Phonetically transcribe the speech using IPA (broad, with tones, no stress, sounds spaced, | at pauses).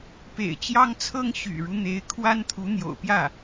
p ḛ˨˩ ɪ̯ t͡ɕ j ɑ˥ ŋ t͡sʰ ɤ˥ ŋ ɕ y̰˨˩ ɻ u˦ n̪ e˧˥ ɪ̯ kʰ w a˥ n t̪ʰ u˧˥ n̪ j o̰˨˩ ʊ̯ p j ä˥˩